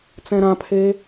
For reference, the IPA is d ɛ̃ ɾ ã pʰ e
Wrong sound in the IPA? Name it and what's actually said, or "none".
d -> t͡s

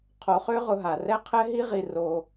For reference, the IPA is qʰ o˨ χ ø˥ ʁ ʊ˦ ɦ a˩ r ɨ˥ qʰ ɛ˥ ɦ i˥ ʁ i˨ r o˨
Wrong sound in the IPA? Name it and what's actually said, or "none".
ɨ˥ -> ɛ˥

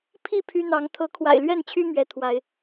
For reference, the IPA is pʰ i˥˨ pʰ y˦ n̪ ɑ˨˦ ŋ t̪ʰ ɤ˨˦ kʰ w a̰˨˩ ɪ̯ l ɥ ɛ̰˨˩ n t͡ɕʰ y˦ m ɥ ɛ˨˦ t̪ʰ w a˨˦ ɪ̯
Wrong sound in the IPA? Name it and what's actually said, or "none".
ɛ̰˨˩ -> ɛ˥˨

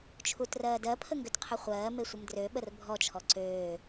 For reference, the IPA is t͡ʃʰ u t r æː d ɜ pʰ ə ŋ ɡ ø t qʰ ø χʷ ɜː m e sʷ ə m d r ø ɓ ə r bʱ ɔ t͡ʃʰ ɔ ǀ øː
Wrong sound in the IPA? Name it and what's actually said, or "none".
æː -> ɜː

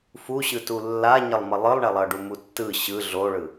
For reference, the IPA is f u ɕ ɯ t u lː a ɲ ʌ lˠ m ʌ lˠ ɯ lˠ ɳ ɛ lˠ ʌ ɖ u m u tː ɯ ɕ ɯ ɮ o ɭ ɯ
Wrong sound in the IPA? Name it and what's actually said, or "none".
none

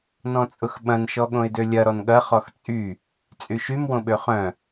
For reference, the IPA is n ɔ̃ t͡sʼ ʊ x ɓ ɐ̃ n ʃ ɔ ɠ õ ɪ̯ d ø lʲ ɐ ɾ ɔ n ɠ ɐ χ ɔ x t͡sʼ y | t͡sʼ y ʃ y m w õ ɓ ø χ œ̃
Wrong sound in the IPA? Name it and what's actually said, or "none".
none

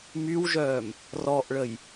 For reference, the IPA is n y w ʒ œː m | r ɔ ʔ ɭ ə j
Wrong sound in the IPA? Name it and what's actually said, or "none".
n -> m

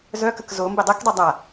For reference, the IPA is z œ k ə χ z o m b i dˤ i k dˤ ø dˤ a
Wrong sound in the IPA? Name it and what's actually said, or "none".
χ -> k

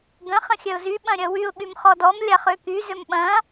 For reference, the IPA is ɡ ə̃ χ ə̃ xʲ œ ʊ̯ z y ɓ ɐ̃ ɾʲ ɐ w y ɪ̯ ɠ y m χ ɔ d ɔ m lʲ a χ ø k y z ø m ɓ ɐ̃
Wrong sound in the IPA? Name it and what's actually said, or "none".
ɪ̯ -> ʊ̯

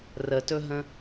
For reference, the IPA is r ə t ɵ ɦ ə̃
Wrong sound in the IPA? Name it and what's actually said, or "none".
none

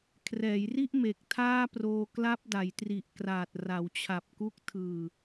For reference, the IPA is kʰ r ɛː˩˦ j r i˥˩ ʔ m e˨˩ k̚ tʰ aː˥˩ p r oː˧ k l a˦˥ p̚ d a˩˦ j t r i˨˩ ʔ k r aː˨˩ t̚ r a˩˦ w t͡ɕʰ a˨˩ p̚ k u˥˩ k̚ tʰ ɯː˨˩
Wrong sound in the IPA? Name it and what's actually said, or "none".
none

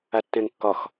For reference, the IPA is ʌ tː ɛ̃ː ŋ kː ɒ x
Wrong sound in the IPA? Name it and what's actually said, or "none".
ʌ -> a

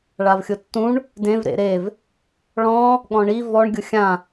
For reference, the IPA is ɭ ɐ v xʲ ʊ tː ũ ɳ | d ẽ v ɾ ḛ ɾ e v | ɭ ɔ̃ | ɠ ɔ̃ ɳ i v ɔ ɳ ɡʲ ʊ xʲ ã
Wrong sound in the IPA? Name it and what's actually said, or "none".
ɐ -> a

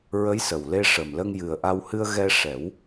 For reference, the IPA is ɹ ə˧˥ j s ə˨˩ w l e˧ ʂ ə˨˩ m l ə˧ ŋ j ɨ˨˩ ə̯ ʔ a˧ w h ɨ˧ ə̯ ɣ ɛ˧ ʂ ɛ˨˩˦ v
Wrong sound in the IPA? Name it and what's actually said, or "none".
v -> w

